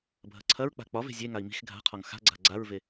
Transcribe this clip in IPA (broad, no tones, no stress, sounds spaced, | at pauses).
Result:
bʱ ɐ ǀʰ ɐ ɹ k͡p a̤ k͡p ɒ v e̤ zʲ e ŋ a i̯ m i̤ x ɡʱ a̤ qʰ ɒ ŋ x a̤ ɡ͡ǀ a̤ ɡ͡ǀ a ɹ v e